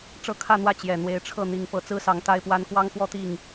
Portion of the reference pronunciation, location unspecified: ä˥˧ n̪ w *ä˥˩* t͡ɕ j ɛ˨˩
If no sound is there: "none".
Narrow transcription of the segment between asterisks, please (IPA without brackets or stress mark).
ä˥˩